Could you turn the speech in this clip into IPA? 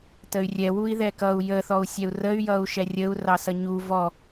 t ə y̯ rʲ ɛ w u i̯ ð ɛ k ʌ u̯ j ə θ ɔ u̯ sʲ ɛ u̯ r ə y̯ j ʌ u̯ ʃ ɛ rʲ ə u̯ r ɑ s ʌ ɲ u v ɔ

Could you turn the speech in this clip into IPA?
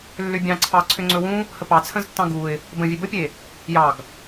lː ʏ bʲ ɑ̃ ǀʰ ɑ ǀʰ ʏ ŋ͡ǀ ɵ w ũ | h ə p ɑ t͡sʰ ə̃ z tː ɑ̃ ɡ u ɪ̯ | b ə̃ vʲ e b ə pʲ e | j ɑ ɡ

